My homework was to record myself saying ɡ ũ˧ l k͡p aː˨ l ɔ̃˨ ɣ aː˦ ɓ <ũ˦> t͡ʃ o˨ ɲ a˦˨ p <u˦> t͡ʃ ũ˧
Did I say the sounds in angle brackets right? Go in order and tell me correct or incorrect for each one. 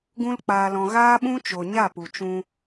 correct, incorrect: u˨

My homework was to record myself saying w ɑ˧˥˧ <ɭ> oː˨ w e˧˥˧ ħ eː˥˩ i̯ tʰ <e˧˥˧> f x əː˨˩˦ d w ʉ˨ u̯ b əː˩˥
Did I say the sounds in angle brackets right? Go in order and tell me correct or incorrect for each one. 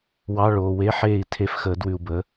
correct, correct

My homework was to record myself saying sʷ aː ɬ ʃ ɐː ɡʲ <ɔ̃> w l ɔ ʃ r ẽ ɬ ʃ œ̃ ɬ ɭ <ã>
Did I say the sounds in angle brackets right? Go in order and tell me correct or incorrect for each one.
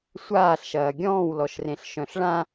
incorrect: ɔ̃ː, correct

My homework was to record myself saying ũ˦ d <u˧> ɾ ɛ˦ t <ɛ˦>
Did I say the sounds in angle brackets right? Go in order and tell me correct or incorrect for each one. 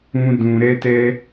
incorrect: ũ˧, correct

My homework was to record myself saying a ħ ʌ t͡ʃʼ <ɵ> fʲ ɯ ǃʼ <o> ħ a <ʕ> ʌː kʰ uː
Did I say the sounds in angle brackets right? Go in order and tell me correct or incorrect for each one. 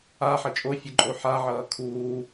incorrect: o, correct, correct

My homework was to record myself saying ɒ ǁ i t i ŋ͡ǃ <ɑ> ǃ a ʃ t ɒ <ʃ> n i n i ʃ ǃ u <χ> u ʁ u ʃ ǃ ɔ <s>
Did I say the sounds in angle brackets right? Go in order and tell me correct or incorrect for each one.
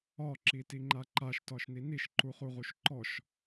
incorrect: a, correct, correct, incorrect: ʃ

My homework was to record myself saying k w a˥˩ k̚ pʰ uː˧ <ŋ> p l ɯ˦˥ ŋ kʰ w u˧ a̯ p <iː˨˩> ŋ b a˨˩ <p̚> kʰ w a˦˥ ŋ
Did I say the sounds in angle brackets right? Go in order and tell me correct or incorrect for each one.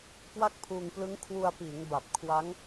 correct, incorrect: iː˩˦, correct

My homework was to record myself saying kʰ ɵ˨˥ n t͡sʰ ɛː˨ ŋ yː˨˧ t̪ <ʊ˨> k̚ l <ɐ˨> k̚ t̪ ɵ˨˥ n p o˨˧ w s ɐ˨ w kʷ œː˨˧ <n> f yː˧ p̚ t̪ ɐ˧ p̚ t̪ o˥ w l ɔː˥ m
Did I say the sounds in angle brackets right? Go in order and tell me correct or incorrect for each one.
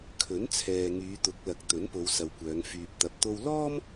incorrect: ʊ˨˥, correct, incorrect: ŋ

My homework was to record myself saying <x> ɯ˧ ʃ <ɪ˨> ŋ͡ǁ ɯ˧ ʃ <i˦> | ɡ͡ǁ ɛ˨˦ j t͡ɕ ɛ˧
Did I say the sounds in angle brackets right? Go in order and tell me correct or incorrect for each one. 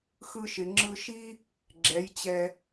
correct, correct, correct

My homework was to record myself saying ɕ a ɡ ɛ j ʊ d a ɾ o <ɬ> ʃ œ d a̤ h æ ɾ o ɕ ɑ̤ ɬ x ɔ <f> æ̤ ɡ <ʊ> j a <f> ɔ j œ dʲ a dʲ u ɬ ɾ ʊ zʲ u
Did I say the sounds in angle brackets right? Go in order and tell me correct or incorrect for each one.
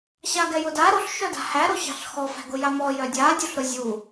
correct, correct, correct, incorrect: m

